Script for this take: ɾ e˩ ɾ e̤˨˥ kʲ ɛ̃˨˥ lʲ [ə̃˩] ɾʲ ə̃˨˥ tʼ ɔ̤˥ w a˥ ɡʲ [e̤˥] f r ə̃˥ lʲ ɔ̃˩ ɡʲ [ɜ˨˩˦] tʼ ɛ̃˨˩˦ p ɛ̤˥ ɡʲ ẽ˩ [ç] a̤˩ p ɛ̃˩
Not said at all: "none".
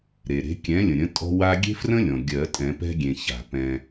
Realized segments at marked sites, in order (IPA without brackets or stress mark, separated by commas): ə̃˩, e̤˥, ɜ˨˩˦, ç